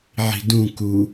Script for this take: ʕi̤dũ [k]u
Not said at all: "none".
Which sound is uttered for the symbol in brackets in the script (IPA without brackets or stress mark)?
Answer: k